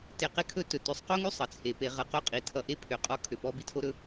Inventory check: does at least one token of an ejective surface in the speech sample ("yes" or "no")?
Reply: yes